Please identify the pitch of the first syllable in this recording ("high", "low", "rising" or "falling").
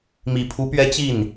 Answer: low